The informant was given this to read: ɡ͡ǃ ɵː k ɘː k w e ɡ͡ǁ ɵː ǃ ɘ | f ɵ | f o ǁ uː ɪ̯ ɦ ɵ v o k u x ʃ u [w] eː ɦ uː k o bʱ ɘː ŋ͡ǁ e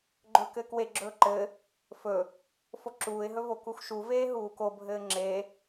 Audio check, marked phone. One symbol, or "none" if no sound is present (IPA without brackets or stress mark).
v